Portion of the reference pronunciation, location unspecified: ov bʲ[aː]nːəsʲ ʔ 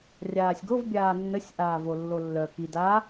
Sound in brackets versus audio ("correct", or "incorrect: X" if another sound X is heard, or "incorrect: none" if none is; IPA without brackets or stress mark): correct